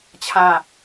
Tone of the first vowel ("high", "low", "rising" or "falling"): falling